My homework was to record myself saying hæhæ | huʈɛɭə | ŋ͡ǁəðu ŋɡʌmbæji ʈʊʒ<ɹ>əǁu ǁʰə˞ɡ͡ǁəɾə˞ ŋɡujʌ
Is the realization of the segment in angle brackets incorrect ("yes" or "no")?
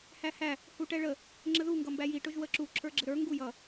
yes